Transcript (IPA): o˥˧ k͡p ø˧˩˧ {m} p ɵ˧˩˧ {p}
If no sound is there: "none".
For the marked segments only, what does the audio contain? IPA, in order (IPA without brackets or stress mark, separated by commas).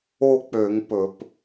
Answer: ŋ, p